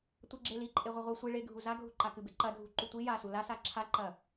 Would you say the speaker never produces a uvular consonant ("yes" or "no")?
no